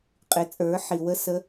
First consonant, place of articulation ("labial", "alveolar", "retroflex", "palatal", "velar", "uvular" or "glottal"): uvular